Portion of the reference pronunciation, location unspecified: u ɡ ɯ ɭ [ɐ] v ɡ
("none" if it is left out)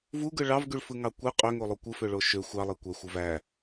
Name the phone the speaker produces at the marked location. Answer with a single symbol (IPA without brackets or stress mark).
ɑ